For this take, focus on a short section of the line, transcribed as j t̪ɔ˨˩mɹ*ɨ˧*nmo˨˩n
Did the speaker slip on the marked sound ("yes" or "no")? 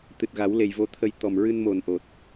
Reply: no